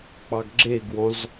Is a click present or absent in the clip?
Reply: present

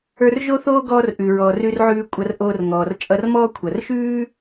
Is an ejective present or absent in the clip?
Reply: present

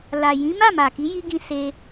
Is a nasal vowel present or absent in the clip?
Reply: present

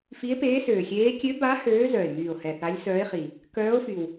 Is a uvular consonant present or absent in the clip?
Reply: present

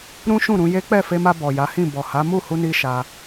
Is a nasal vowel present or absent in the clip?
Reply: present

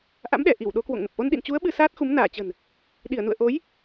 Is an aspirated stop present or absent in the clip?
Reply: absent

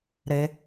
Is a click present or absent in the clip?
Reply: absent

